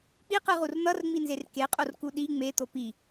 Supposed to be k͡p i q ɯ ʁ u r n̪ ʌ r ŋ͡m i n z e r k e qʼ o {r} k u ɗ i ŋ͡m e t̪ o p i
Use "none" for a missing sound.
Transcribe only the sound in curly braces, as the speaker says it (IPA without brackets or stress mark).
r